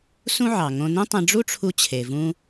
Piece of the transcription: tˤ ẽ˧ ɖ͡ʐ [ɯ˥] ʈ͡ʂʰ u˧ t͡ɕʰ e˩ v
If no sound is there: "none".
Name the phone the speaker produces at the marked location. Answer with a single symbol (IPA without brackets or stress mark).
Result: u˥